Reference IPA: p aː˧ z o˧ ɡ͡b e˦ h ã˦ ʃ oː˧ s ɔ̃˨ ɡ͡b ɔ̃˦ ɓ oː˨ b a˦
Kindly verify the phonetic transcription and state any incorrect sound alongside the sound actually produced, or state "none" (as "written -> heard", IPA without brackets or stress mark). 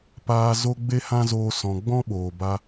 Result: ʃ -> z